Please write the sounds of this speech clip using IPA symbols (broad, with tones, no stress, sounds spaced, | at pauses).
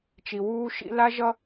t͡ʃ i˨ w uː˦ ʃ ḭ˦ l a˦ ʒ ʌ˦